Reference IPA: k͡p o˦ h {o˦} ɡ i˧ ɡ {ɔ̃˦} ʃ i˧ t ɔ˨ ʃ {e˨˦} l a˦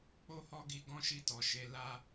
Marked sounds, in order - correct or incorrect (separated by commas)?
incorrect, correct, correct